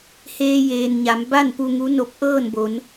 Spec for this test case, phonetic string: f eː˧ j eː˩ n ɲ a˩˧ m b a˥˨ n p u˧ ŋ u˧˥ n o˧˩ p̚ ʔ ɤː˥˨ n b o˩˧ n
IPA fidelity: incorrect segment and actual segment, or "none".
f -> h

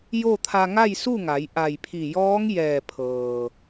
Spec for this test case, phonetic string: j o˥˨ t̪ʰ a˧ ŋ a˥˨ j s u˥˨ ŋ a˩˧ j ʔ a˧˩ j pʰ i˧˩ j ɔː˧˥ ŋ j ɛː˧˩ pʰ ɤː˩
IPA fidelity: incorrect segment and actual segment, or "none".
none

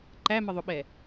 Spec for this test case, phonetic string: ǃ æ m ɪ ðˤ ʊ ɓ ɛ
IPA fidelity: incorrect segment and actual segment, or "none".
none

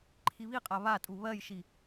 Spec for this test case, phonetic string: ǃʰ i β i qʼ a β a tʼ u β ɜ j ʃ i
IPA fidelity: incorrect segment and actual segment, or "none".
none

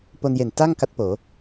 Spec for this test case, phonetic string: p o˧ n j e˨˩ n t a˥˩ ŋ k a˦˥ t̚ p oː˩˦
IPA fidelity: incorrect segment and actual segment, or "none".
none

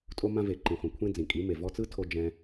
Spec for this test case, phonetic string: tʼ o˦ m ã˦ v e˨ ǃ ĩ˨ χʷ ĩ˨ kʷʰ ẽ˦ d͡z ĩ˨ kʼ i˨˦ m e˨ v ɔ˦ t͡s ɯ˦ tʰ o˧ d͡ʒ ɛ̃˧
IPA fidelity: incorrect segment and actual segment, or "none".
none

